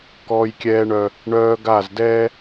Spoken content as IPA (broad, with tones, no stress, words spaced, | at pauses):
kɔː˦jkʲɛː˦ɳœ˦ | ɳœː˦ɡa˦˨zdɛː˦